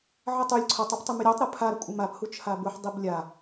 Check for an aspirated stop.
present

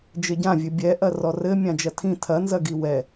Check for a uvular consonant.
absent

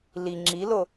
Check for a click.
present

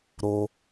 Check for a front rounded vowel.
absent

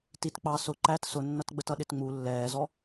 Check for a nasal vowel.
absent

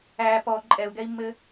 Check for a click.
present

